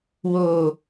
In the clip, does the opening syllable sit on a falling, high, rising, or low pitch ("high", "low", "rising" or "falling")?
low